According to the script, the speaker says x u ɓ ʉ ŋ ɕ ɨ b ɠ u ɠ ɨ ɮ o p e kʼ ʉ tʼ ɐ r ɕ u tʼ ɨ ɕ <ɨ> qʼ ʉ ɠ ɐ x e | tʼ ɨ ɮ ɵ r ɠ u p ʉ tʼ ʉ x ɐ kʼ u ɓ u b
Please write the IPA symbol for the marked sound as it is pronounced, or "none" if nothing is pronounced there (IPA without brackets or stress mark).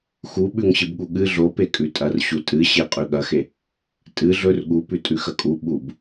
e